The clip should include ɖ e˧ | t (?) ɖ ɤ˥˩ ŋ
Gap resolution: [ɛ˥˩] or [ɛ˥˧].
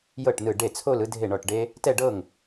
ɛ˥˧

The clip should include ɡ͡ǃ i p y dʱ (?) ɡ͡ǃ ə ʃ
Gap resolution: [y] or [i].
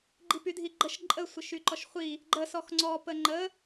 i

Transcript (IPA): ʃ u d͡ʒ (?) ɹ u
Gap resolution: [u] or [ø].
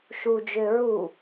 ø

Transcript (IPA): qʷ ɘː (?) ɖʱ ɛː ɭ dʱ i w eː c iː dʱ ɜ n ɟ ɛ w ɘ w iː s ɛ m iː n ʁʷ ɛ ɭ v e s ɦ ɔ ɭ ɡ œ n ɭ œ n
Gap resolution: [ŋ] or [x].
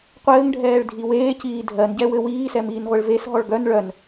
ŋ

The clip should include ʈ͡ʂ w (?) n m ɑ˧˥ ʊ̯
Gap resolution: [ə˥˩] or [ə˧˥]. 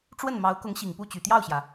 ə˥˩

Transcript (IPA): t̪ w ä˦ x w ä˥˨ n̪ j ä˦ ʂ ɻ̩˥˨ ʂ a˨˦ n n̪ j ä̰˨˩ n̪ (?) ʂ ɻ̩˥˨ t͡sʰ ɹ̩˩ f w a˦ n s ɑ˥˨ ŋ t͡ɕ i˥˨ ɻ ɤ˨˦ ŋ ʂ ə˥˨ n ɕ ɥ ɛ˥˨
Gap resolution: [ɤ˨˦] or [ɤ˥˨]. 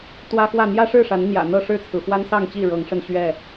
ɤ˥˨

